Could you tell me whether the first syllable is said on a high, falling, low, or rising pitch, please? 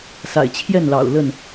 low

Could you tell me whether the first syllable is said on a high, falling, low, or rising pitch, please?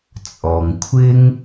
low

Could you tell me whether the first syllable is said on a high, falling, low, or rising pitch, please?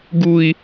low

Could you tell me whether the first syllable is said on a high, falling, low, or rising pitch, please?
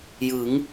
rising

